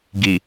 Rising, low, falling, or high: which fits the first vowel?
low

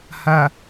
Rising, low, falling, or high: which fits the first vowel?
low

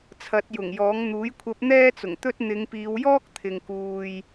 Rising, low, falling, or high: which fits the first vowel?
rising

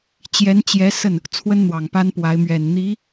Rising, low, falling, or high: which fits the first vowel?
rising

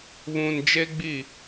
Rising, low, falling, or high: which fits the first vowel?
low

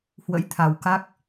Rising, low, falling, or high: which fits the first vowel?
rising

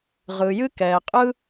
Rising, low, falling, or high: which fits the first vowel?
low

